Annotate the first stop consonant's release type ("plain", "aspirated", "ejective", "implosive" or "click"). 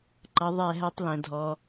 click